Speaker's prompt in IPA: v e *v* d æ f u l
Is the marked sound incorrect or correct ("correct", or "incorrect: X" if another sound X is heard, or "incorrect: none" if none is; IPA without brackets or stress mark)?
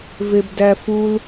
incorrect: b